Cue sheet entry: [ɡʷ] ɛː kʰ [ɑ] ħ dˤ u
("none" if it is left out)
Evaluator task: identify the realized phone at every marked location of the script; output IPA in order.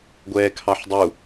ɡʷ, ɑ

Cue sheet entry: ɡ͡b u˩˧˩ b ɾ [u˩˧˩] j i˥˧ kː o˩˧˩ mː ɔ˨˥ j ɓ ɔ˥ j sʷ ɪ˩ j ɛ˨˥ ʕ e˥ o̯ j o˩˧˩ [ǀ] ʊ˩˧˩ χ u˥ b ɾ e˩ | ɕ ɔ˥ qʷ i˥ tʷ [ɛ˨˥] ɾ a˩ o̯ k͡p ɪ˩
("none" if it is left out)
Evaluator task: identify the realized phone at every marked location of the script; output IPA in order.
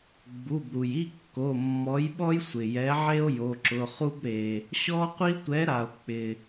u˩, ǁ, ɛ˨˥

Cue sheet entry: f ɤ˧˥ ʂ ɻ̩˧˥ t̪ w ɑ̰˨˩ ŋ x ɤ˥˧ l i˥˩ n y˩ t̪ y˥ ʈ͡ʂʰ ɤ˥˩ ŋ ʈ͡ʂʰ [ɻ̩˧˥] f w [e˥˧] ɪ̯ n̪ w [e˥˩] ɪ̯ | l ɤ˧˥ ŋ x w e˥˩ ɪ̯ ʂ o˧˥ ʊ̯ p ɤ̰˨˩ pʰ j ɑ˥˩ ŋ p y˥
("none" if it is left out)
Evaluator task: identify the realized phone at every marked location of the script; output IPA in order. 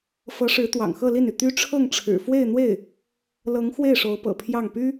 ɻ̩˨˩, e˥˧, e˥˩

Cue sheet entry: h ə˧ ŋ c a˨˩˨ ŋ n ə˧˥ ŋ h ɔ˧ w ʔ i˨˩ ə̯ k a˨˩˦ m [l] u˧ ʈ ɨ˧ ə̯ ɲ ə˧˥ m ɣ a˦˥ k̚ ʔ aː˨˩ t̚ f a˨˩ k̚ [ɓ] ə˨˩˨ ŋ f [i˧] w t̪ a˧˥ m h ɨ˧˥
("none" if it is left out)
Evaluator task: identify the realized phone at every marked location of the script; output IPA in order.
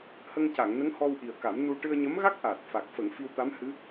n, f, i˧

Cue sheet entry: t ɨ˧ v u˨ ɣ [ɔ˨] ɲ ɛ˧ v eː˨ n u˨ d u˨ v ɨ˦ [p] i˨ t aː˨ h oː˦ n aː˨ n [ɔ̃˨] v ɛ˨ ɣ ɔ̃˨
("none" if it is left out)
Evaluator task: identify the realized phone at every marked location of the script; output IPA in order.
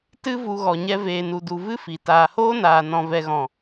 ɔ˨, f, ɔ̃˨

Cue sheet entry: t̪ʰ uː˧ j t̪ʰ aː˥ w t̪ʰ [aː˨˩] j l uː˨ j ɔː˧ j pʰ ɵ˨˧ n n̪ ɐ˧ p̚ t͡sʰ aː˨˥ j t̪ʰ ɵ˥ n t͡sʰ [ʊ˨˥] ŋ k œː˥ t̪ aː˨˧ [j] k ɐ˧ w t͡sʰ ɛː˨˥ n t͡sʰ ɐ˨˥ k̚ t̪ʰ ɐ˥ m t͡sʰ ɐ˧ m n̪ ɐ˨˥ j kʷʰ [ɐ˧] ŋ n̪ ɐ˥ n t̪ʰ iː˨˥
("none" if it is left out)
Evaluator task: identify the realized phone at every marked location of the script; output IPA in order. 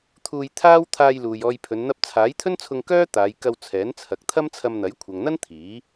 aː˧, ʊ˧, j, ɐ˨

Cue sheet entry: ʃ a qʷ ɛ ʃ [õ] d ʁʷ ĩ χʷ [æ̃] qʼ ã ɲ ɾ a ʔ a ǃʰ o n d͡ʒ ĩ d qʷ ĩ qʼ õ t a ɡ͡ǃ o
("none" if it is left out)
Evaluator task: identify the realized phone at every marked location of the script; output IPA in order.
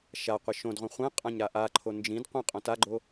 õ, ɛ̃

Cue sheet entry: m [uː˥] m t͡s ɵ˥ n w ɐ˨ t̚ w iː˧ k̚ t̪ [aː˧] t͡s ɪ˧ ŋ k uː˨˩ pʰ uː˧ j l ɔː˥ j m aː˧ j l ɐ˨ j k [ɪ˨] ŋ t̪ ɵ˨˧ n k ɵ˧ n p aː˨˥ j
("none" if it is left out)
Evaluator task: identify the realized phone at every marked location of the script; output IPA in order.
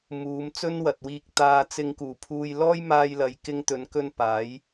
uː˨˧, aː˧, ɪ˧

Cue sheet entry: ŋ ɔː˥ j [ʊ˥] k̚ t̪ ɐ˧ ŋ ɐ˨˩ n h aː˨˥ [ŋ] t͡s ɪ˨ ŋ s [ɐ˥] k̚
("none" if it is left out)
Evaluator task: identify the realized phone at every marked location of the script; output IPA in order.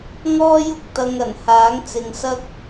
ʊ˥, ŋ, ɐ˥

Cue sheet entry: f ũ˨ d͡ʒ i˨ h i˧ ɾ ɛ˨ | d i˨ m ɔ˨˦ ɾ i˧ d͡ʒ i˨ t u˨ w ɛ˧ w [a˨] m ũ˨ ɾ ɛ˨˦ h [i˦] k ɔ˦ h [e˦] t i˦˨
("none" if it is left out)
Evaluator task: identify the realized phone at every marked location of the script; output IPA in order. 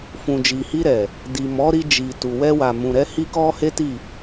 a˨, i˦, e˦

